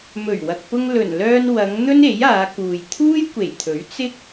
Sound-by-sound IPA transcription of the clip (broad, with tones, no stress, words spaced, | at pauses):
mɵ˨˩ɥwɐ˨k̚pʊ˧ŋ lɵ˨˩nlœː˧n wɐ˨˧ŋ n̪ɵ˥ne˨˥jaː˨˧kuː˨j t̪ʰuː˥jkʷe˨˩jt̪ʰɵ˨˥ɥ t͡sɪ˥k̚